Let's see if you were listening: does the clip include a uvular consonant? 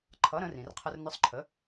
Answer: yes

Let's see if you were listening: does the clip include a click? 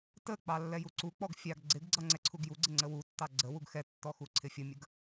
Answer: yes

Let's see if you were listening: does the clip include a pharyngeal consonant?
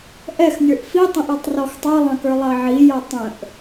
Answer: yes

